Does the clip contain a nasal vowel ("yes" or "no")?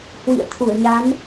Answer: no